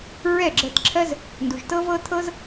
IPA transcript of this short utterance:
ɹ ɛ˦˨ ɡ͡ǁ ɜ˧ t ǁʰ ɜ˦ z | n d u˨ ʒ t ɤ˦ v ɤ˦ t̪ʰ ɤ˦ z

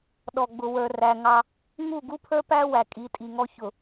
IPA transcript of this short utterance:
ɗ ɔ˨ ɡ͡b ʊ˨ w ə˞˨ r æ˨ ŋ ɑ˦ | ŋ u˦˨ ɡ u˦ pʰ ə˞˦ p æ˦ w æ˨ kʼ i˨˦ tʼ i˨ ŋ ɔ˦ ç ʊ˨

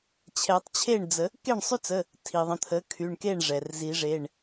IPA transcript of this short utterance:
t͡ɕʰ ɛ˨˩˦ tˤ t͡ɕʰ e˥˩ ɳ d͡z ə˨˩˦ | k e˥˩ ɳ sˤ y˦ t͡s ə˩˧˩ | tʰ i˩ ðˤ ə̃˩˧˩ t̪ʰ ə˩˥ kʰ y˩˧˩ ɳ k e˥˩ ɳ ʐ ɛ˩ r z i˨˩˦ ʐ e˩˧˩ ɳ

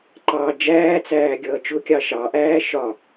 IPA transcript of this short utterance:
ǃ ɑ d͡ʒ æː t͡s æː ɡʲ ʌː t͡ʃ ʊ kʲ ɑ ʃ ɑ ʔ æː ʃ ɒ

